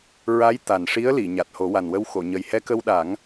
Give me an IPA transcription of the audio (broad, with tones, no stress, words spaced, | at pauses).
ɹa˧˥j t̪a˨˩nʂi˧˥ə̯li˨˩˨ ɲa˨˩t̚ho˨˩˦wa˨˩nwə˧w xo˨˩˨ ɲə˨˩jhɛ˧kə˧wɗa˨˩˦ŋ